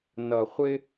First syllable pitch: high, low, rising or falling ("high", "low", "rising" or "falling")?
low